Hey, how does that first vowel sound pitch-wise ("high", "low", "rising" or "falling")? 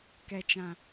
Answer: low